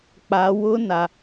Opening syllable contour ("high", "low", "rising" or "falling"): high